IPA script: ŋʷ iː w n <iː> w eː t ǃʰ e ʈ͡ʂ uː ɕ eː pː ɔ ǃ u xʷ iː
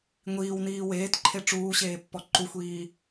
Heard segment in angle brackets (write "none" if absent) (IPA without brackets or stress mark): iː